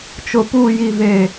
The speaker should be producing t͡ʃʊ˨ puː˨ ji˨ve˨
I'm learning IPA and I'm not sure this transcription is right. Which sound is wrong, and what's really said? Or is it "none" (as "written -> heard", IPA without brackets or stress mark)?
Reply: none